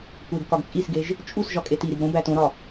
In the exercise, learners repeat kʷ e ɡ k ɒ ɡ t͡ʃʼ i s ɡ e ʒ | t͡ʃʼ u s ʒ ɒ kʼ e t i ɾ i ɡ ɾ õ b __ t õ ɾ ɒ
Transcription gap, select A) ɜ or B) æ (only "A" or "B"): B